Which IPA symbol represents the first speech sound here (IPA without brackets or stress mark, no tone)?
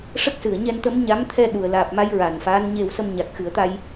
ʂ